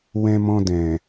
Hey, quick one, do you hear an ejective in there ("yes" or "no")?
no